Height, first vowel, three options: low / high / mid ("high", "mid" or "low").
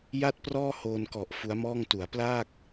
low